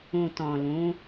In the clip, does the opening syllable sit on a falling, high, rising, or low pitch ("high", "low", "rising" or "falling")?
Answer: low